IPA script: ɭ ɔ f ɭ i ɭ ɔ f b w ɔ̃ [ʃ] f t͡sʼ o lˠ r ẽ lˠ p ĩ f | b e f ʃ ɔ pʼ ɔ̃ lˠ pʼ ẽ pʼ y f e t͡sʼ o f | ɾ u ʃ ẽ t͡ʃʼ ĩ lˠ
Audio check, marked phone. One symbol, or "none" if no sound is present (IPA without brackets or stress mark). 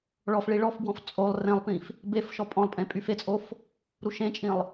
none